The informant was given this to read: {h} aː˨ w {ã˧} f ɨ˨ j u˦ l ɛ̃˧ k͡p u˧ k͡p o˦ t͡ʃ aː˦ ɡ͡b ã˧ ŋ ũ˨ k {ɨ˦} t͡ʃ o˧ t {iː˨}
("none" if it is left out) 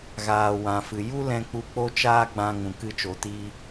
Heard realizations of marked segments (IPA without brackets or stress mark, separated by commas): ɣ, ã˨, ɨ˦, iː˦